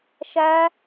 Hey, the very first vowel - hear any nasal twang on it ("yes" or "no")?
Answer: no